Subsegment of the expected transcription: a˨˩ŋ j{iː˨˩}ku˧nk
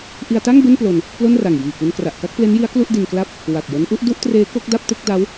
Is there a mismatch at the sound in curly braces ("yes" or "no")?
no